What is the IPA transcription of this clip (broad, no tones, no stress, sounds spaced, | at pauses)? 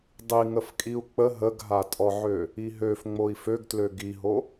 dˤ i ŋ ə f kʼ i u̯ k͡p ə ɦ ə ɡ ɦ a tʼ ɔ ʕ ø | i ɦ ø f ŋ͡m o i̯ f ø ɡ t l ø ɡ i ɦ o